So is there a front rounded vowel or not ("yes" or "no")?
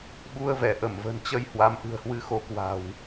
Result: no